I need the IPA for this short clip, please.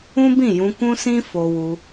ũ˦ b ĩ˦˨ j ũ˧ k ũ˦ s ĩ˦ f o˧ w u˧

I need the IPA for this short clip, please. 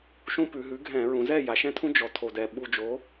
ʃ ũ˦ p ʉ˩˧ ɦ ʉ˩˥ ɡʱ ɛ̃˧˩˧ ɹ ũ˩˧ z ɛ˥˩ j a˩˧ ʃ ɛ̃˦ tʰ ũ˦ d͡ʒ ɔ˩˥ tʰ o˨˩ d ɛ˨˩ ɓ u˨˩ d͡ʒ o˩˧

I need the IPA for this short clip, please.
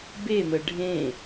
b e m ə ɖʱ ẽ

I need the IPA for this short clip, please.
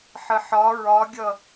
ħ ə ħ ɒ ɹ ɒ ɡʲ ʌ

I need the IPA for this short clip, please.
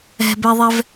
ɛ̤ b ɛ ðˤ ɛ v

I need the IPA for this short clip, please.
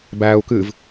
b æː u̯ k ɨː v

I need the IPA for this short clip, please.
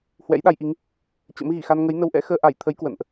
h w ɛ̰˧˥ j ɗ a˧ j ʔ i˨˦ ŋ | t͡ɕ ə̰˧˥ m ɣ i˧˩ x a˧ n ŋ ə˨˦ j n ə˧ w ʔ ɛ̰˧˥ x əː˧ ʔ a˧˩ j t̪ʰ ə˨˦ j k w ə̰˧˨ n ʔ

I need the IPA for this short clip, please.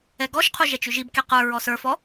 ɛ ɡ ɔ ʃ qʰ u ʒ ɛ t͡ʃ ʉ ʒ i b k e q ə˞ ɹ ɔ s ə˞ f ɔ

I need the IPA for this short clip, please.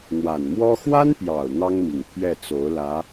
n̪ w a˨˩ n m w ɔ˥ x w a˥ n p j ɑ˨˩ ʊ̯ n̪ ɑ˥ ŋ m i˨˩ ŋ pʰ ɥ ɛ˥˩ t͡s o˧˥ ʊ̯ l ä˧˥

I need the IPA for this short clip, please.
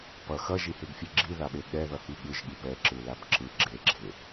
p ʌ x ʌ ʒ i h e ɡ fʲ ɛ ɡ͡ǁ i ð a ɓ e ɠ ɛ ð ʌ h i ɠ ɯ ʒ ɠ i p ɛ ǁ ɯ l a b ǁ ɯ ɡ͡ǁ e ɡ͡ǁ e

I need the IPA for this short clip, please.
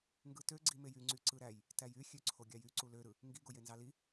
ŋ ɡ ɯ t ø ɡ͡ǀ i m e j y ŋ͡ǀ y ǀ ɯ ɾ æ j | t æ j y xʲ ø ǀʰ o ɡʲ ɑ j y ǀ u l ø ɾ ɯ | ŋ ɡ i ɡ o j e n z ɑ l i

